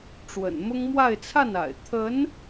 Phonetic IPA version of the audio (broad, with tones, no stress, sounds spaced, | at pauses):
ʈ͡ʂ w ə̰˨˩ n m ʊ˥ ŋ m w a˥˧ ɪ̯ t͡sʰ a˥˩ n a̰˨˩ ɪ̯ t̪ʰ ə˧˥ n